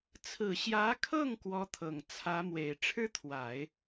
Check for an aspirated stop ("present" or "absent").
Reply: present